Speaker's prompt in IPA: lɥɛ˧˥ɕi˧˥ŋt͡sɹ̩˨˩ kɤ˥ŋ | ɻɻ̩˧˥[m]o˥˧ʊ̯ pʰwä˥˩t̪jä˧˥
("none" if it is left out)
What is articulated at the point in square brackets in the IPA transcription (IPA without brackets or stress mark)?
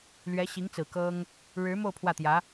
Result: m